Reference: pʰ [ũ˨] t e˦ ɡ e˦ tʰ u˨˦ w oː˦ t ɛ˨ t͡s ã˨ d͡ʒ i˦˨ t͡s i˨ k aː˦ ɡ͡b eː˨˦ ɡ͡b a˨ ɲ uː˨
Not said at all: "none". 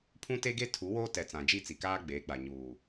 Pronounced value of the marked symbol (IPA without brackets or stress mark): ũ˦